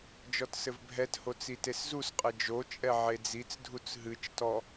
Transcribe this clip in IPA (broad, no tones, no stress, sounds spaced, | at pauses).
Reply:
d͡ʒ ɔ t s ɘ v bʱ ɛ t h o t͡s i t e s z u s qʼ ɘ d͡ʒ o t͡ʃʼ ɛ ʕ e d͡z i t͡s dʱ u t͡s ɦ ɨ t͡ʃ t ɔ